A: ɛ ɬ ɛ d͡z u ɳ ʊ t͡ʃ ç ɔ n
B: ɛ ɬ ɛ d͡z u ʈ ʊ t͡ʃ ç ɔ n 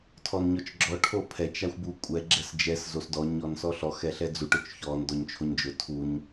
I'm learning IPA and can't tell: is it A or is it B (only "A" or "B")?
B